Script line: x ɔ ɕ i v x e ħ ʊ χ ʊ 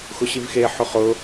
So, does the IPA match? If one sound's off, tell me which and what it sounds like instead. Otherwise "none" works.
ɔ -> ʊ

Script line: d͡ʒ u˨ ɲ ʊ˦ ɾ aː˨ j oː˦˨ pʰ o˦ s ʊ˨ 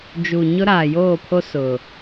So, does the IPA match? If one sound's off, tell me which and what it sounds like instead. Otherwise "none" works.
none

